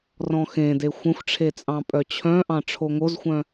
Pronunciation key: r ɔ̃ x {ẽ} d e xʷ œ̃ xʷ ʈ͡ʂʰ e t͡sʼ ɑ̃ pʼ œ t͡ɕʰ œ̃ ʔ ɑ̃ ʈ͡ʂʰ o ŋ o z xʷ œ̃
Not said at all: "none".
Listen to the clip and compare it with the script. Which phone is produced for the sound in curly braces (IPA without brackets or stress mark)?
ẽ